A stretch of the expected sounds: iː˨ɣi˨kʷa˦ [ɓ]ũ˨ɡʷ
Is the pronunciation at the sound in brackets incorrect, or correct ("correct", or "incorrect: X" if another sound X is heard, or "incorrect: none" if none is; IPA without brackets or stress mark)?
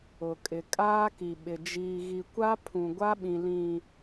incorrect: pʰ